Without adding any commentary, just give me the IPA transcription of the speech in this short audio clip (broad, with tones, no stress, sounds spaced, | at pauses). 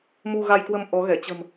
m u˧ ɣ a˧ j k w ə˧ m ʔ ɔ˨˦ ɣ ɛ˧˩ t͡ɕ ə̤˨˩ m